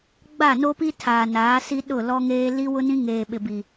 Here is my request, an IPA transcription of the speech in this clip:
ɡ͡b a˦˨ n o˦ p i˦ tʰ aː˨ n aː˨˦ s i˦ ɗ ʊ˦˨ l ɔ˦ ŋ eː˦ l i˦ w ʊ˦ n ĩ˦ ŋ eː˨ ɓ ɪ˨ b i˨

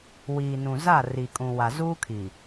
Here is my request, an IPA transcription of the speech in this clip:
w iː˨ n ũ˨ z a˦˨ r i˨ kʼ ũ˨ w a˨ z uː˦ kʰ i˨

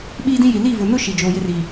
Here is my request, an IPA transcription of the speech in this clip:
ɓ iː˦ d ĩ˦ j i˨ l i˦˨ v ʊ˨ n ʊ˦ ʃ i˨ d͡ʒ oː˨ j ɪ˦ r i˨

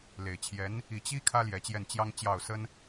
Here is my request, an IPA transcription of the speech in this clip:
l e˨˩ ɪ̯ t͡ɕʰ j ɛ˧˥ n | i˥˩ t͡ɕ i˥ kʰ ä˥ l j ɛ˧˥ t͡ɕ j ɛ˥˩ n t͡ɕ j ɑ˥ ŋ t͡ɕ j ɑ˥˩ ʊ̯ s ə˥ n

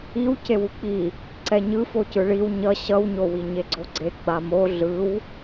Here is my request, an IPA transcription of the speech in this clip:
i w c e w u k͡p i | ǀ ɛ ɲ ɯ f o c ɯ ɭ i w ɲ ʌ ɕ ʌ w ɲ o w i ɲ e ɡ͡ǀ o ɡ͡ǀ e ɡ͡b a m o ɮ ɯ w

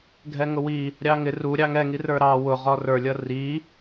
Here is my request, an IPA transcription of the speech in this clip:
ɡʱ ɛ ŋ ʊ w i | ɾʲ ɑ ŋ ɪ r u ɾʲ ɑ ŋ ɛ ŋ i r ə˞ ɾ ɑ w ʊ ʁ ɔ r ə˞ lʲ ʌ r i

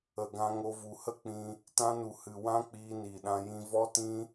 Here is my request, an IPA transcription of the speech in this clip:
ə˨ ɡ ã˧ ŋ o˧ v u˨ h ə˦ k͡p ĩ˧ | t ã˧ n u˨ h ɨ˨ w ã˦ k͡p iː˧ n iː˨ ɗ ã˧ j ĩ˧ v ɔ˦ t ĩ˦

